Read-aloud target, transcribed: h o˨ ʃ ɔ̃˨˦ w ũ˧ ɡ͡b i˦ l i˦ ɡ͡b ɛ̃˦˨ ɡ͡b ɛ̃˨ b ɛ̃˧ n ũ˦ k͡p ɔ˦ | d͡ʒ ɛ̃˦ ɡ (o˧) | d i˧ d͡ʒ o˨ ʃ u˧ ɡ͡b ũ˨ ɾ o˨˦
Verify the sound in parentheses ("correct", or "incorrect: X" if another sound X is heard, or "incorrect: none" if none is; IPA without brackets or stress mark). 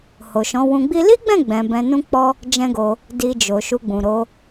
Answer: correct